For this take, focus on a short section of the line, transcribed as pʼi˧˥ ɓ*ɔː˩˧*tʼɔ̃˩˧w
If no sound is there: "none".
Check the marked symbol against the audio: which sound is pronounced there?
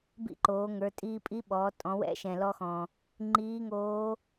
ɔː˩˧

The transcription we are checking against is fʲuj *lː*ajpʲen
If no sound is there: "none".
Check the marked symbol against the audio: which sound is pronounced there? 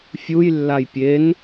lː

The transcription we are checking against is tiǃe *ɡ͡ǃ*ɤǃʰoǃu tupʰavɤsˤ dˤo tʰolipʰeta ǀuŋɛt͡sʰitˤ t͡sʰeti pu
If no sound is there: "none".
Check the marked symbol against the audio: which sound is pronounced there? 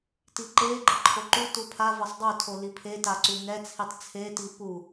ɡ͡ǃ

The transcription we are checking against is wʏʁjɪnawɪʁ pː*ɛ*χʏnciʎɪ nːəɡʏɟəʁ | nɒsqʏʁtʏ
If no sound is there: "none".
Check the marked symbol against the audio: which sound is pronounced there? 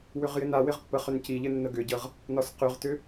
ə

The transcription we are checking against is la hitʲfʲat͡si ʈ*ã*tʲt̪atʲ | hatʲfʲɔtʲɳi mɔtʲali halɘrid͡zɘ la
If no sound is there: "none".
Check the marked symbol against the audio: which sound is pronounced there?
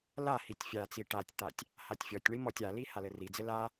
a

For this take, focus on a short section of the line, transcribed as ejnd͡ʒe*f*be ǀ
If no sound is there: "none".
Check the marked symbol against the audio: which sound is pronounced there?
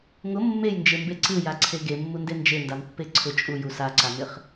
m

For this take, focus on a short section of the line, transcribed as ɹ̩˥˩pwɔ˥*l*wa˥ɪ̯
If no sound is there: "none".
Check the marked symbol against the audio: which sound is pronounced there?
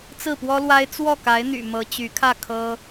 l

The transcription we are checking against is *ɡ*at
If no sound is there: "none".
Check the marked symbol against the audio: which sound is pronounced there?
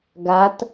ɡ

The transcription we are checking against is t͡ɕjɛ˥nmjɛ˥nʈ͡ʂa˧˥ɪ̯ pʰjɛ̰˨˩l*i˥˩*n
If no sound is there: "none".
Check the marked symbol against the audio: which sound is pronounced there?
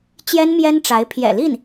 i˥˩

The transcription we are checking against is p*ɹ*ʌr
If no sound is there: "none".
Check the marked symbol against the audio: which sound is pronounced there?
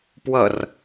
w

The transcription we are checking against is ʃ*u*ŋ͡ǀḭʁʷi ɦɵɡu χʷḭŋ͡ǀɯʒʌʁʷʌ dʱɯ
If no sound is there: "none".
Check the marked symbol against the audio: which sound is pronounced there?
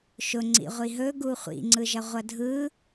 ʊ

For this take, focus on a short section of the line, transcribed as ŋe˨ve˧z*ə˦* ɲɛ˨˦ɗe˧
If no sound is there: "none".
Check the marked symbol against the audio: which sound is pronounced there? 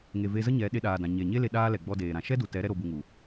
ə˦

